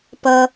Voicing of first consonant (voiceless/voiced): voiceless